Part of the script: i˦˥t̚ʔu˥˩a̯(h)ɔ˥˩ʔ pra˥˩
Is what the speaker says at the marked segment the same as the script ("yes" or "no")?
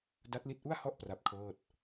yes